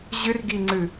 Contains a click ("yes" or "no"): yes